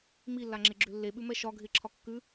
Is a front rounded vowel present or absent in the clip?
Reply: present